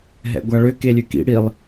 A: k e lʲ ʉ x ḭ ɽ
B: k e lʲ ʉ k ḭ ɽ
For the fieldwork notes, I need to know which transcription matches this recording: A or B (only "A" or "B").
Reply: B